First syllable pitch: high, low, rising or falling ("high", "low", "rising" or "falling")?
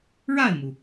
falling